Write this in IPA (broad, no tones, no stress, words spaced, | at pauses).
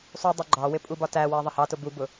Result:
sˤudˤʌ ɡ͡ǃɑwɪ pʼubɒ tæwæ ðˤʌhɑtʊ bu bʊ